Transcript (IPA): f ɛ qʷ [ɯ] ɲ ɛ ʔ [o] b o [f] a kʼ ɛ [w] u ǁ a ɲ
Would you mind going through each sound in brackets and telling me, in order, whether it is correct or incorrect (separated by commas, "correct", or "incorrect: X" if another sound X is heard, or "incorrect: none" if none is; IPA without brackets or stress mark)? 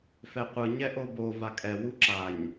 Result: correct, correct, incorrect: v, correct